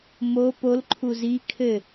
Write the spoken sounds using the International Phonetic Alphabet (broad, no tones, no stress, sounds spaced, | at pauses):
m o p o l ǃʰ u z i kʰ ɘ